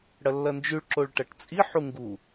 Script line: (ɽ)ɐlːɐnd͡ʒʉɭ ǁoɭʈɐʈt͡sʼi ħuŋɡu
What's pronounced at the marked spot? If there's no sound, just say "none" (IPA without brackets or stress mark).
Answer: ɽ